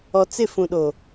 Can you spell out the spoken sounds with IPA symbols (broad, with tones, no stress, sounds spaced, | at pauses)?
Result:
ɔ˨ t͡s ɪ˦˨ f ũ˨ ɗ o˨